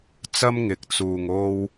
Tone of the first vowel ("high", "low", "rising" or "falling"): high